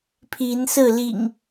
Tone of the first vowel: rising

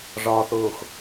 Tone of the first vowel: low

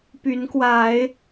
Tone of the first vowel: rising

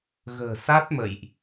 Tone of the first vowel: low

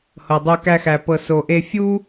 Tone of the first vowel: low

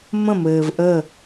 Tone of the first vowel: falling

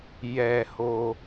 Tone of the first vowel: low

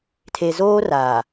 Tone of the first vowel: low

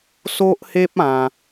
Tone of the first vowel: high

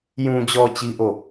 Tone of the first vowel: low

